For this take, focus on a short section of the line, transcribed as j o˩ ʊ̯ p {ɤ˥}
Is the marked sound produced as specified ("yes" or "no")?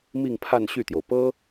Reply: yes